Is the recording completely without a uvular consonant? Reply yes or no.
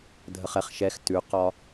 no